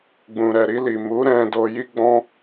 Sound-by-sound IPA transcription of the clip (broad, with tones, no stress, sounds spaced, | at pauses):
ɡ͡b ũ˨ ɾ ɛ˨ ɾ i˧ l i˨ m u˨˦ ɾ ɛ̃˧ d o˧ j i˦ ɡ͡b ɔ̃˦